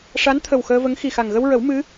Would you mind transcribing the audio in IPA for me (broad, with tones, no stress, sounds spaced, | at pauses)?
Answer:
ʂ a˧˥ n t̪ʰ ə˨˩ w x əː˧ v ə˧˥ ŋ x i˨˩ x a˨˩ ŋ ɣ ə˧ w ɹ ə˨˩˦ w m ɨ˧˥